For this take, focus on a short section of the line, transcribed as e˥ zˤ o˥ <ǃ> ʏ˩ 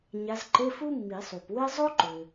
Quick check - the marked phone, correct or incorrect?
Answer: correct